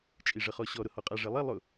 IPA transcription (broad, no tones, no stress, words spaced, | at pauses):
t͡ʃʼiʐəχɔɕɔ ɾʊhɔqʼa ʐelˠi lˠʊ